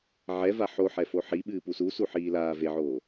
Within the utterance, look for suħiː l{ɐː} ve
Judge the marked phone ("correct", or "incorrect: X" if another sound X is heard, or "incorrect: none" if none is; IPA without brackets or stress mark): incorrect: aː